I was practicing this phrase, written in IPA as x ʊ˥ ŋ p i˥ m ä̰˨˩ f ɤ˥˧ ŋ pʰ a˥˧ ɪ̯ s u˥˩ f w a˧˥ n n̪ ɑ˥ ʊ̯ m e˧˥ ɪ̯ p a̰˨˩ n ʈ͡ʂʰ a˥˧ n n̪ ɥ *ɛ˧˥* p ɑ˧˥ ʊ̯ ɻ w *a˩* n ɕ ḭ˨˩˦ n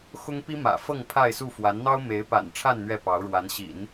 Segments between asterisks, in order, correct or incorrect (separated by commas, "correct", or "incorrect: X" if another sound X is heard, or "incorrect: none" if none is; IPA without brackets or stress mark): incorrect: ɛ˥˩, incorrect: a˧˥